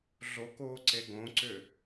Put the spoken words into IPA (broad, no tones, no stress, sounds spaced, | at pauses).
ɮ o k oː ǀ e ɡ õ ǀ ʏ